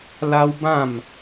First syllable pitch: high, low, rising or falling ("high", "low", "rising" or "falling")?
high